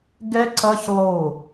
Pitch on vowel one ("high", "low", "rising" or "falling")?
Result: high